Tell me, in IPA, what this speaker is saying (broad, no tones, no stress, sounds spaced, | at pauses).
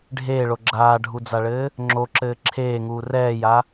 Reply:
ɖʱ eː ɭ o ɡ͡ǁ aː ɖʱ u d͡z a ɭ ɘː | ŋ͡ǁ o ǁ ɘː ǁʰ eː ŋ uː r ɛː j a